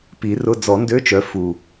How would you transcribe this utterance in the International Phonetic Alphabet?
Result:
p i˨˩˦ r ʊ˧˥˧ d͡z ɔ˨˩˦ n d ø˧˥˧ t͡ʃ œ˨˦ f u˨˩

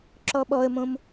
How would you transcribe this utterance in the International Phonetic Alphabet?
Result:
ǁ ɔ ɓ ɔ ə̯ m õ m

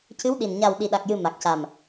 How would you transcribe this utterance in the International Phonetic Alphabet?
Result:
c ɨ˧˥ w ɗ i˨˩ n ɲ a˨˩ w ɗ i˨˩ ɗ a˨˩ k̚ j ɨ˨˩ m a˨˩ k̚ c a˨˩ m

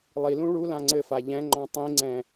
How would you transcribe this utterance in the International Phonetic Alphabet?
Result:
lˠ i l ũ ɭ u l ã ŋ͡ǀ ɘ f a ʎ ɛ̃ ŋ͡ǃ ɔ̃ tˤ ĩ ŋ͡ǀ ɛ̃

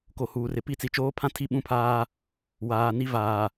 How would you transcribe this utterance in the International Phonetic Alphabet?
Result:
k o˨ h uː˨ r ɪ˨ p i˦˨ t͡s i˨ t͡ʃ oː˦ pʰ ã˦ tʰ i˦˨ ɓ ũ˦ pʰ aː˦ | w aː˨ n i˦ v aː˨

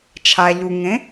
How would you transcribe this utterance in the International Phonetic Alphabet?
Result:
t͡ʃʰ a˨ ʎ u˨ ŋ ẽ˨˦

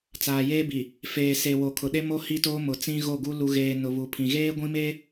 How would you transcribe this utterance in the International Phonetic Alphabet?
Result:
t͡s aː˨ j eː˦ b i˨ | f eː˨ s e˨ w o˨ kʰ ʊ˨ ɗ e˦ m o˦ h i˦ t oː˦ m ʊ˨ t͡s ĩ˦ ɣ o˦˨ ɡ u˦ l u˨ ɣ eː˨ n ʊ˨ β u˨ pʰ ĩ˨ ɣ eː˦ ɡʷ ĩ˦ m eː˦

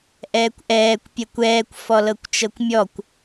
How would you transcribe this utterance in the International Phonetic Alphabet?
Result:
ʔ ɛː kʷ ʔ ɛː kʷ pʲ ɛ kʷ ɛː kʷ f ɔ l ɤ kʷ t͡ʃ ɤ kʷ mʲ ɔ kʷ

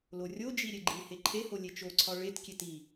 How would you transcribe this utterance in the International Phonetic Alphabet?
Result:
l o rʲ o d͡ʒ i ɾʲ e ɡ͡ǃ i h e ǃʰ e h o lʲ e t͡ʃ o ǀʰ ɒ ɭ e t kʲ e t i

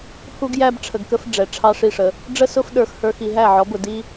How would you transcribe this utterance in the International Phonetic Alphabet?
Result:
h u˦ ɡ j æ˦ b ʈ͡ʂʰ ə˧ ɡ k ə˦ f ɖ͡ʐ ɛ˨ ʈ͡ʂʰ ɑ˦ ʂ i˦˨ ʂ ə˧ | ɖ͡ʐ ə˦ s ʊ˦ f ɗ ə˞˧ x h ə˞˧ x i˧ ɦ æ˦˨ ʕ ɔ˨˦ b ʊ˨ d i˦

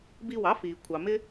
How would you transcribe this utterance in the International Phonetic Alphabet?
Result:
b i˧ w ɑ˩˥ f iː˩ kʷʰ ɑ˩ m ɪ˥

